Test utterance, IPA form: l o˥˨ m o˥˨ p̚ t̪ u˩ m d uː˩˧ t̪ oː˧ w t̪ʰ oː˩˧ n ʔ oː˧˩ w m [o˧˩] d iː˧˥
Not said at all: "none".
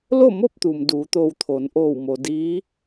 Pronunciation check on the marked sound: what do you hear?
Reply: o˩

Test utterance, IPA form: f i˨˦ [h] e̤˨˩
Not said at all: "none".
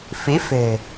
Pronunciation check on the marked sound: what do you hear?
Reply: f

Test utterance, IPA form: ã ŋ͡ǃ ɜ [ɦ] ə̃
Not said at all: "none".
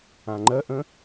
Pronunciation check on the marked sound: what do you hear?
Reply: ʔ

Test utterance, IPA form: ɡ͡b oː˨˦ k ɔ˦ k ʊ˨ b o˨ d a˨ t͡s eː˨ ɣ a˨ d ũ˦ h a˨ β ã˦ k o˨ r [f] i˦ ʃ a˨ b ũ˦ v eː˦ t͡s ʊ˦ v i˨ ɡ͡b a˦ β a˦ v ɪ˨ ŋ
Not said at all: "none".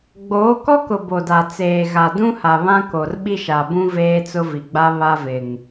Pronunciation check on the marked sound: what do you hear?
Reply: ɓ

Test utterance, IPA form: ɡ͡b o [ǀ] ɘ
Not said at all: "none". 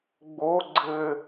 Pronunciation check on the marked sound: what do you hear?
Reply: ɡ͡ǀ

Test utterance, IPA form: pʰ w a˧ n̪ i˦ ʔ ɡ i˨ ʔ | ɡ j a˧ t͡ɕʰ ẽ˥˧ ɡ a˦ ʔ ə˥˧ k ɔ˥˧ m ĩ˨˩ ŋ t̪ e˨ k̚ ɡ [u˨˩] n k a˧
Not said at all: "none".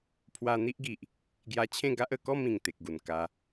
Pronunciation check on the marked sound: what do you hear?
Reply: u˨˩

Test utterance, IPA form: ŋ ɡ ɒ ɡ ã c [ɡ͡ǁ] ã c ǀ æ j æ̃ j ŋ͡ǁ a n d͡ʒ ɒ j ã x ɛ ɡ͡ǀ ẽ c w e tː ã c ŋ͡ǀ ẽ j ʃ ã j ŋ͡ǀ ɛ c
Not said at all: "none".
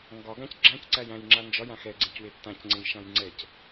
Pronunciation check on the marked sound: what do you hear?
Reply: ɡ͡ǁ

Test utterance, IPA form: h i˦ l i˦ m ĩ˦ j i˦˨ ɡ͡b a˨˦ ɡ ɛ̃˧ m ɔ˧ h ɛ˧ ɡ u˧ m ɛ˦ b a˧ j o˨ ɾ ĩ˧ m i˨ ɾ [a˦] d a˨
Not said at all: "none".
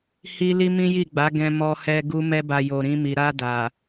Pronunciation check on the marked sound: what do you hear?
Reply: a˧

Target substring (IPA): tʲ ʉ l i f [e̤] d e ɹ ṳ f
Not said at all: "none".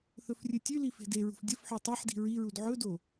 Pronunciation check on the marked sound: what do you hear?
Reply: e̤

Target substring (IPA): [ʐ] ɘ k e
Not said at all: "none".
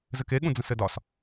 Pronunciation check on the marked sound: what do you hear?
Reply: z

